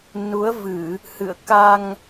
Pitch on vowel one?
rising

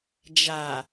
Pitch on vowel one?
low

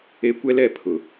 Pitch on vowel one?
high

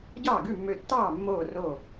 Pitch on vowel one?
falling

